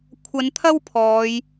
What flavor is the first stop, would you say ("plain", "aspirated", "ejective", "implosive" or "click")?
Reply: aspirated